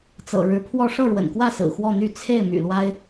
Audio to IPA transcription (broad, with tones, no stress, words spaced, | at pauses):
t͡sɤ̰˨˩ ɻɻ̩˧˥pʰwɔ˥˧ ʂɤ˥˩ɻwə̰˨˩nkwä˥˩ sɹ̩˨˩xwɔ˥˧n̪y˥˧ t͡sʰe˥˩ɪ̯ my̰˨˩lwa˥ɪ̯